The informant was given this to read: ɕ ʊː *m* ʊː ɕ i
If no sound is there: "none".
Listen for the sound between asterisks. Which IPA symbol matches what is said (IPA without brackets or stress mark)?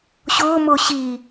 m